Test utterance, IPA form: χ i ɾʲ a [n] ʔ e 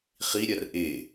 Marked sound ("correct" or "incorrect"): incorrect